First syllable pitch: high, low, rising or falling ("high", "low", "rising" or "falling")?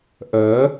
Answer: rising